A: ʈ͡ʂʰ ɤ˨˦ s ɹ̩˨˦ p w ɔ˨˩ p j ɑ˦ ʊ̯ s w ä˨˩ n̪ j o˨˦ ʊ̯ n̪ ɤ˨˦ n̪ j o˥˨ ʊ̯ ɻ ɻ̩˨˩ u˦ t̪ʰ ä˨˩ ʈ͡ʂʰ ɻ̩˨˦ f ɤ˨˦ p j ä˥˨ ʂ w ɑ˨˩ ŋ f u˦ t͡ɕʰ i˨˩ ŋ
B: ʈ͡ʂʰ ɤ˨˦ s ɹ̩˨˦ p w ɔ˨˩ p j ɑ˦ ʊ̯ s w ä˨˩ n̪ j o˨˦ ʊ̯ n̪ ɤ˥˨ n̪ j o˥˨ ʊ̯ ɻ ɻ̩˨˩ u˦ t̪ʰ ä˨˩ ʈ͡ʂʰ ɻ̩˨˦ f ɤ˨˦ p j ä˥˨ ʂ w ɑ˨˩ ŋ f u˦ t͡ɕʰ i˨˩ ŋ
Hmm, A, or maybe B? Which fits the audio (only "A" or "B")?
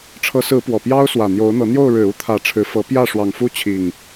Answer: A